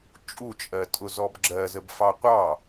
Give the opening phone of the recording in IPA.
t͡ʃʼ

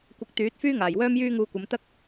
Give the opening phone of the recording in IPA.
kʷ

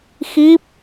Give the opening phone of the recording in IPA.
x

